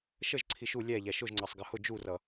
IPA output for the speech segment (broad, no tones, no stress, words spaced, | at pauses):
ʃəʒ ǀʰiʃu lʲæ ʎæʃʊʒŋ͡ǀɑsˤ ɡɜhʊ d͡ʒurʌ